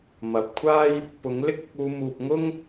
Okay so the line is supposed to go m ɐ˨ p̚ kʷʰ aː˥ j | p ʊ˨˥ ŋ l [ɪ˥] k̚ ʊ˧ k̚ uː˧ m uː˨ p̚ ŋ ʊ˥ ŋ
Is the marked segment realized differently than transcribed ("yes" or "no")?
no